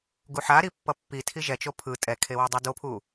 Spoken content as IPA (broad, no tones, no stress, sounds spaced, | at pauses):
ɡ u ħ a ɾ i pː ʌ pː i tʰ i ʒ ɛ t͡ʃ o pʰ ɯ tʼ ɛ kʰ e w e dˤ ʌ d o pʰ u